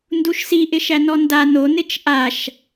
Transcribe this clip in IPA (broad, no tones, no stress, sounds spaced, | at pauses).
n d u ʃ s i ʔ ɪ ʃ æ n ɔ n d a n o n ɪ t͡ʃ ʔ a ʃ